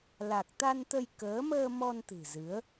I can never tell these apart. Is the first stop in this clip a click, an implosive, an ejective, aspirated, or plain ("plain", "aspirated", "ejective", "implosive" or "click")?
plain